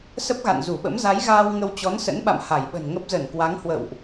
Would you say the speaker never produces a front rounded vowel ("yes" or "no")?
yes